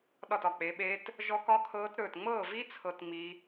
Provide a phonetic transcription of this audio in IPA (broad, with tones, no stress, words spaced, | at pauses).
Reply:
ɗɒ˥˩tɒ˥˩k͡pe˨˥ɓeː˦˥t | ʒɔ˦˥kɒ˦˥kʰɤː˦˥t ɾɵː˥˩t ŋ͡mɤː˥˩vi˦˥ t͡sʰɤ˦˥tŋ͡mi˦˥